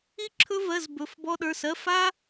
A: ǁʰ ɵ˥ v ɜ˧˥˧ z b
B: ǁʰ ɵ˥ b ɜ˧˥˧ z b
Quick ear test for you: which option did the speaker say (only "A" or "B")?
A